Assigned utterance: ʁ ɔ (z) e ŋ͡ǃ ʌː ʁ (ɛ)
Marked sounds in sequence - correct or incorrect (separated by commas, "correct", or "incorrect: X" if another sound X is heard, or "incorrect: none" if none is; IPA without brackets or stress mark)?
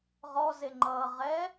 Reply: correct, correct